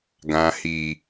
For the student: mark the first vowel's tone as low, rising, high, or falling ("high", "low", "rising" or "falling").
low